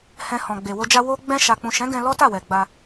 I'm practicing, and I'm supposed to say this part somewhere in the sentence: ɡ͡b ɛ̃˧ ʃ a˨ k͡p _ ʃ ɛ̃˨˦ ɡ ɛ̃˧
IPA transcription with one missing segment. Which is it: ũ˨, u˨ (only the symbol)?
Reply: ũ˨